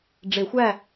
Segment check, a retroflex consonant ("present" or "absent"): present